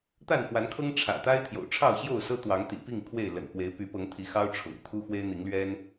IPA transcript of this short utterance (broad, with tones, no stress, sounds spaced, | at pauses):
t̪ a˥˨ n x w a˨˦ n kʰ ɤ˦ ŋ ʈ͡ʂʰ ä̰˨˩ t̪ a˦ ɪ̯ t̪ʰ j o̰˨˩ ʊ̯ ʈ͡ʂʰ ɑ˥˨ ʊ̯ ɕ j o˥˨ ʊ̯ s ɤ˦ t̪ w ɑ˨˦ ŋ t̪ ḭ˨˩ p i˥˨ ŋ kʰ w e˥˨ ɪ̯ l ə̰˨˩ n p w e˨˦ ɪ̯ p y˨˦ p ɤ˨˦ ŋ t̪ʰ i˨˦ x ɑ˦ ʊ̯ ʈ͡ʂʰ ʊ̰˨˩ ŋ t̪ʰ u˦ x w e˦ ɪ̯ n̪ i˨˦ ŋ l ɥ ɛ˦ n